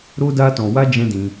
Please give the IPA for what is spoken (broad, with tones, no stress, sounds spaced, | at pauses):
ɾ o˦ d a˦ t ɔ̃˧ w a˦ d͡ʒ ɛ̃˦ d ĩ˧